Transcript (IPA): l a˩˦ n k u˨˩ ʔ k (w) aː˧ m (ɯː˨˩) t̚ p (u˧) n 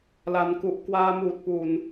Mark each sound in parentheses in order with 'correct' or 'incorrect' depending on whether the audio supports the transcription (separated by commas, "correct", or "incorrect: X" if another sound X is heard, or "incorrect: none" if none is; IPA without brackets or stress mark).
correct, incorrect: uː˨˩, incorrect: u˨˩